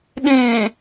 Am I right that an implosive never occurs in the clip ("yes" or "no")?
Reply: no